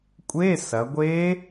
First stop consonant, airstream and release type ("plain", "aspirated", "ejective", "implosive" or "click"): ejective